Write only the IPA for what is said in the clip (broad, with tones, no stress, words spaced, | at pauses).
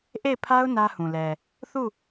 ʔe˦˨ɪ̯pʰa˦ʊ̯ nä˦hũ˨lɛ˨ | θu˦˨